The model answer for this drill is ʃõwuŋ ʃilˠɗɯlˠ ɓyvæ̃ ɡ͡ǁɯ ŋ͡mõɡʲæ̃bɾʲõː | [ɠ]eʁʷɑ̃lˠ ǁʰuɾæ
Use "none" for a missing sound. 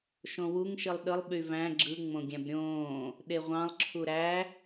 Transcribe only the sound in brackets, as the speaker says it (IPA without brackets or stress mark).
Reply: ɗ